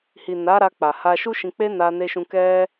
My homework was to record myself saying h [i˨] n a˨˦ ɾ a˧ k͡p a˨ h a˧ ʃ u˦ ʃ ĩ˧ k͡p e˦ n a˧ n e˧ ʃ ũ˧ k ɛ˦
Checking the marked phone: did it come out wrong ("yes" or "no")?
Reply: no